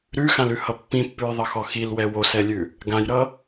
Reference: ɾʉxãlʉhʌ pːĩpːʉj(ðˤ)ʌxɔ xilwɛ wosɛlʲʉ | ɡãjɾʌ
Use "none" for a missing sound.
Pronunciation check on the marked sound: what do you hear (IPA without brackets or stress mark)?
ðˤ